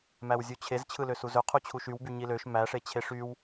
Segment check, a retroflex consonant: present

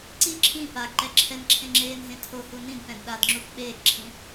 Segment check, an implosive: present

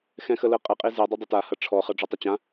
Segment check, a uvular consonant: present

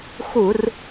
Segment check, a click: absent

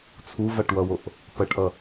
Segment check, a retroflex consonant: present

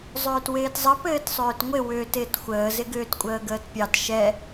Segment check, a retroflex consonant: absent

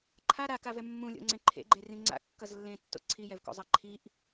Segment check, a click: present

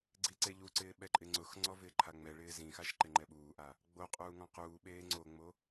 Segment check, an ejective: present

